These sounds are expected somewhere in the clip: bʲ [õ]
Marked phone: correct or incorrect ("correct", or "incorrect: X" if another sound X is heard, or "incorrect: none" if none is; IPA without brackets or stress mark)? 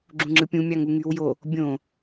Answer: correct